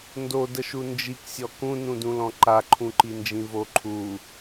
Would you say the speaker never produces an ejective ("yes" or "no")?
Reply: yes